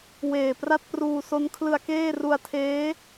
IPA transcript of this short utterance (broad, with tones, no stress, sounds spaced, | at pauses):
w eː˨˩ p r a˥˩ t̚ p r uː˧ s o˦˥ n kʰ l ɯ˧ a̯ k eː˥˩ r u˧ a̯ tʰ eː˦˥